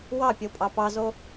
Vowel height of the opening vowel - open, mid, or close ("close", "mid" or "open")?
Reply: open